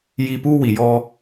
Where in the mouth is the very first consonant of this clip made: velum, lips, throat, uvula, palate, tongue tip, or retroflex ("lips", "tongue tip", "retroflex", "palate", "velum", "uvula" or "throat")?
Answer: palate